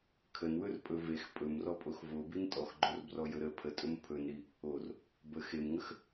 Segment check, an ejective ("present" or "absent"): present